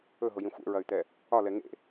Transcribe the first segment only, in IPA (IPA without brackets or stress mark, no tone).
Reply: ɵ